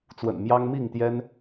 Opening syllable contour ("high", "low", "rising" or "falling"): low